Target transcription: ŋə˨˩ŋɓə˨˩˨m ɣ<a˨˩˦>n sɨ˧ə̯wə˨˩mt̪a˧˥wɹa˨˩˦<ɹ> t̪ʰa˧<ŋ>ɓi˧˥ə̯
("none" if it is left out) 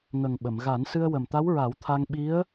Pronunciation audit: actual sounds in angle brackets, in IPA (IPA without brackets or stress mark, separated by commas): a˨˩˦, w, ŋ